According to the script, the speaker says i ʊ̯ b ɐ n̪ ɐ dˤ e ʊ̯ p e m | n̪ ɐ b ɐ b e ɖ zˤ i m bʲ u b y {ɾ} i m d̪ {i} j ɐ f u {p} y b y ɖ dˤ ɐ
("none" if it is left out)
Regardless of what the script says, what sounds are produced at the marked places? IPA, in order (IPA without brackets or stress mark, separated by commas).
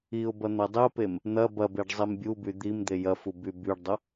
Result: d̪, e, b